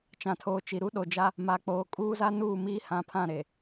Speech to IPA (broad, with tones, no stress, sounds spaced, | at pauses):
t͡ʃ ã˨ tʰ oː˨ t͡ʃ i˨ ɾ u˦ ɗ o˨ d͡ʒ a˦ | m a˨ k͡p oː˨ kʼ uː˦ z a˦ n uː˦˨ m iː˦ h ã˨˦ pʰ ã˦˨ ɾ e˨